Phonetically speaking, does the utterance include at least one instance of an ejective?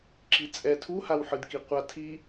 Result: yes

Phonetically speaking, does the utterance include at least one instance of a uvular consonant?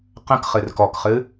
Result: yes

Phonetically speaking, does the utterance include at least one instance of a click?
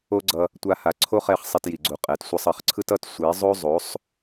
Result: yes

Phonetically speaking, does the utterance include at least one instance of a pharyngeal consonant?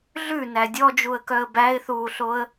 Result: no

